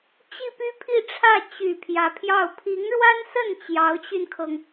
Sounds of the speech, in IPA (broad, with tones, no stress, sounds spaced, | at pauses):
t͡ɕ i˥˩ p y˥ pʰ i˥˧ ʈ͡ʂʰ ä˥˩ t͡ɕ y˨˩ pʰ j ä˧˥ pʰ j ɑ˥˩ ʊ̯ pʰ i˧˥ ŋ ɻ w a˥ n s ə˥˩ n t͡ɕ j ɑ˧˥ ʊ̯ t͡ɕ y˧ n kʰ ɤ˩ ŋ